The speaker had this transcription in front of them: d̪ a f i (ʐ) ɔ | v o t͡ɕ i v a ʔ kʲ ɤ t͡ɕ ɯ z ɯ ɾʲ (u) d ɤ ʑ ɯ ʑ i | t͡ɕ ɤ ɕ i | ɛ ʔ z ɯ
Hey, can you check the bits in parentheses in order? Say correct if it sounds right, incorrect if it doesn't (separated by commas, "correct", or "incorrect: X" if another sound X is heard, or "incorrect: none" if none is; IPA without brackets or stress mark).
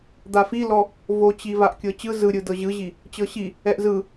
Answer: incorrect: l, incorrect: ɯ